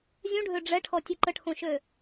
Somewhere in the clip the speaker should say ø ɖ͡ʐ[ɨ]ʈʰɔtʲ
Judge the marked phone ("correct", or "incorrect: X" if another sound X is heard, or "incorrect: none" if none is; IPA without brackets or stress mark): incorrect: ɛ